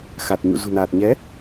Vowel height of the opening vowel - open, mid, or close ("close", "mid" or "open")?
open